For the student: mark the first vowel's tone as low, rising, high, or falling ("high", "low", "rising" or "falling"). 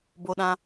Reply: high